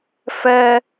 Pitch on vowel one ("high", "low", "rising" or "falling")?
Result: high